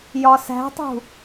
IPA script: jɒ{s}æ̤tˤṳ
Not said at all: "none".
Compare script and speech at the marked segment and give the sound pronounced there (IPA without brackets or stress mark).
s